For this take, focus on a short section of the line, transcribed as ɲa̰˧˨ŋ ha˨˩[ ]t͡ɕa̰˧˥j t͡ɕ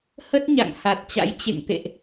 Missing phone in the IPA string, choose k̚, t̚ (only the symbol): t̚